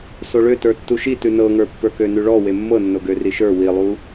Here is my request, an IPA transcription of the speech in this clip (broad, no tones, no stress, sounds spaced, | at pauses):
s o ɭ ø t ə˞ tː u ʃ i t ʉ n ɤ ŋ ə˞ pː ə˞ k ø n ʉ ɭ ɔ w e mː ɤ nː o ɡ ø r i ʃ ə˞ w i lˠ u